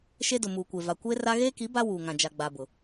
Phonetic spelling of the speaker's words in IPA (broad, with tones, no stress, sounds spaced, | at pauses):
ʃ e˦ d ʊ˨ m uː˨ kʷ e˨ v a˨ kʷ eː˦ r a˦ ɣ eː˦ k i˨˦ b a˦ w uː˨ ŋ ã˨ d͡ʒ a˨ ɡ͡b a˨ b ʊ˨